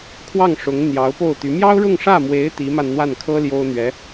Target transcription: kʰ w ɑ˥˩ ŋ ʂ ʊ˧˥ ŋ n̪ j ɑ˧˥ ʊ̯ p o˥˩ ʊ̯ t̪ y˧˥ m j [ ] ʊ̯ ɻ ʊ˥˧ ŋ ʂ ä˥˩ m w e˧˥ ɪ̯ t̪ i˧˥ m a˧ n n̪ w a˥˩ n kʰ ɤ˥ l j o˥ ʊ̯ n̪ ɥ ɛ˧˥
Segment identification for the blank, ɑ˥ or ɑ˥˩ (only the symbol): ɑ˥